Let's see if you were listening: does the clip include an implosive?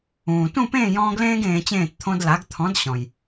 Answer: no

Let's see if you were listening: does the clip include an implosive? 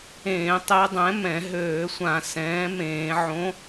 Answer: no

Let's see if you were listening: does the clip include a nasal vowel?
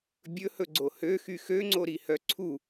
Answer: no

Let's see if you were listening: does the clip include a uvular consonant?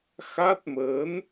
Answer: no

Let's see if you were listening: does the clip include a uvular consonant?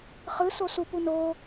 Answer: yes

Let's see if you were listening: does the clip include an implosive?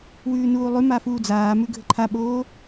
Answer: yes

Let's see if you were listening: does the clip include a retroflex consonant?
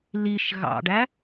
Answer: yes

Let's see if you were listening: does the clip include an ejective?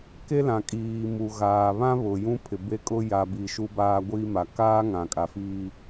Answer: yes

